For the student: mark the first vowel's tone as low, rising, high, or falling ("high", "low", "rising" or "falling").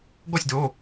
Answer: falling